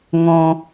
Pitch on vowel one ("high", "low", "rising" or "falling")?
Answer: low